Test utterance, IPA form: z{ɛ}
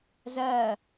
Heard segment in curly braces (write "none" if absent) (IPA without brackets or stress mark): ɜ